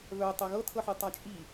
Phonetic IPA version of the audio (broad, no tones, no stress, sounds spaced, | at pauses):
v œ tˤ ɤ ɣ ɤ tʰ ɤ ħ ɨ tˤ a t͡ʃʼ i